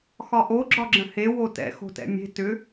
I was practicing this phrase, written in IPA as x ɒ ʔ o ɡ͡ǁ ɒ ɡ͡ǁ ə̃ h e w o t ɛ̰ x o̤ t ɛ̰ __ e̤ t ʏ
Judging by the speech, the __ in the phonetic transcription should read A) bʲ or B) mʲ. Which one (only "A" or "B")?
B